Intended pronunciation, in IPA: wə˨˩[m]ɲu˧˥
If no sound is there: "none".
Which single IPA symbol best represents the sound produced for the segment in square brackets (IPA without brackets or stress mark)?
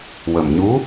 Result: m